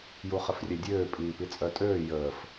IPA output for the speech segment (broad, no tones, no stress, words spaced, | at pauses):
juχəfrʲɛdʲøː pʼiːpit͡sʼœtʼøː jəːf